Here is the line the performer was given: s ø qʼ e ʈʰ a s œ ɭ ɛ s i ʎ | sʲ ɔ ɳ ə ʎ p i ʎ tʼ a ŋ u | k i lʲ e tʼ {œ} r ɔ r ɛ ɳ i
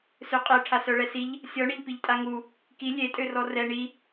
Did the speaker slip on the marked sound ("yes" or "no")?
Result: yes